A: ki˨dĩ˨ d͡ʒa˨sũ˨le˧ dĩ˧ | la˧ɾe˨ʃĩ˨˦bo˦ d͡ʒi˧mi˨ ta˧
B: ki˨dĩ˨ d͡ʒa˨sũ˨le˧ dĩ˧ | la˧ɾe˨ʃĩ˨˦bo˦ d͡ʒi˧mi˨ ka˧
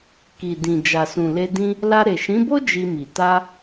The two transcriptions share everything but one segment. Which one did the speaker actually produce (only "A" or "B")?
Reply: A